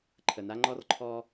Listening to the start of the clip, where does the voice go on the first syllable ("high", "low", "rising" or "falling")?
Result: low